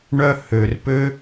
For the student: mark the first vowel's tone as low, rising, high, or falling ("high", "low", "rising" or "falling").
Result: high